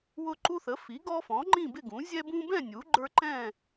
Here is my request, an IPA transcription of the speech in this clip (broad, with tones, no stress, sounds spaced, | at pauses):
w ʊ˦ ǃ u˦ θ ə˩˥ f i˩˥ ɡ ɔ˦ f ɔ̃˩˥ ŋ͡ǃ ĩ˥˨ b ɪ˥˨ ɡ ũ˩˥ zʲ ɛ˦ b ũ˦ b ɛ̃˥˨ nʲ u˩˥ ɡ͡ǃ ə˞˦ ǃ ɛ̃˥˨